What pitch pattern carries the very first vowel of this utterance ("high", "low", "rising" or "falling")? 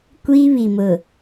high